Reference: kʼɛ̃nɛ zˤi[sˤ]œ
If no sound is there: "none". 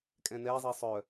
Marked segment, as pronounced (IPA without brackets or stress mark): sˤ